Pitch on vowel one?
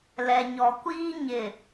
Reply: low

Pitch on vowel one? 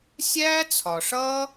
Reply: high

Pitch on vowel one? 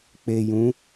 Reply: low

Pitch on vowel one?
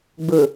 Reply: low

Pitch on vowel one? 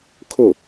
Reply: falling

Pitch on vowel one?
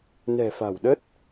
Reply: low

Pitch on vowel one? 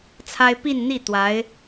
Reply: high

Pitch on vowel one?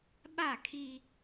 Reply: falling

